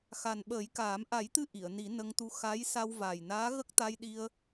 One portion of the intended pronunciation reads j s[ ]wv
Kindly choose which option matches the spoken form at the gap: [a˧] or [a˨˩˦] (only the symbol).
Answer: a˧